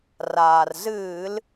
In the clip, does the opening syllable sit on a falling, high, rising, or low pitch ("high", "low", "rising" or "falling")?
low